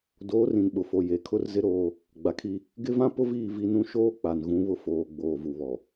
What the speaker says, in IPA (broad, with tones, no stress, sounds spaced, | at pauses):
d oː˨˦ r ĩ˨ n ɓ ʊ˨ f o˨ j e˨ kʰ ʊ˦ r z ɪ˦ ɾ oː˦ | ɡ͡b a˨ kʰ i˦ | ɡ ɪ˦ v ã˦ p ʊ˦ v iː˦˨ v i˦ n ũ˦ ʃ oː˦ k͡p a˨ n ɣ ũ˨˦ β ʊ˦ f oː˨ ɡ͡b oː˨ v u˨ β ɔ˨